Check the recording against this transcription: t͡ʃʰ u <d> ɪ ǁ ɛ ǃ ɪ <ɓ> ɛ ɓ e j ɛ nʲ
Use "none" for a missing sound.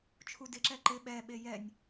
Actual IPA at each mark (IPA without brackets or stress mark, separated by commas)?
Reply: d, ɓ